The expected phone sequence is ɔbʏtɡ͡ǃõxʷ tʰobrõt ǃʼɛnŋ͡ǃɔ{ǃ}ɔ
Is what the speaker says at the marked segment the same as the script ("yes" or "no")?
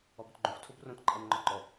yes